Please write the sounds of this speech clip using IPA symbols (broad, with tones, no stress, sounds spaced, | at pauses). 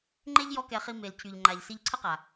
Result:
ŋ͡ǃ e˦ ʎ j ɔ˦ k ɛ˧ χ i˧ m e˨ l cʰ y˨ ʎ ŋ͡ǃ a˨ ʎ s i˧ ʎ ǀʰ ə˦ q a˨